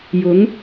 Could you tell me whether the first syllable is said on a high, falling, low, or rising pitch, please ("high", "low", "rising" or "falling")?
rising